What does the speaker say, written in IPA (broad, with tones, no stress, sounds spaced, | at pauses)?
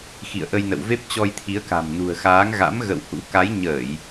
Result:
x ḭ˧˨ ə̯ ʔ ə˧ j n ə̰˧˨ w v e˦˥ p̚ t͡ɕ ɔ˧ j t̪ʰ i˨˦ ə̯ k a̤˨˩ m n ṳ˨˩ ə̯ x aː˨˦ ŋ ɣ a̰˧˥ m ɣ ə̰˧˨ w h ṵ˧˥ k a˨˦ j ɲ əː˧˩˨ j